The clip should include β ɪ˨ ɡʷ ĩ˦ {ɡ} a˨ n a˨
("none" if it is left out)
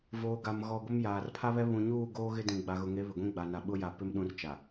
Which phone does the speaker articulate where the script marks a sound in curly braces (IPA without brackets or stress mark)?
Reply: ɡ͡b